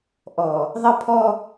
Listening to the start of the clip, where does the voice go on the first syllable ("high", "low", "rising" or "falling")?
low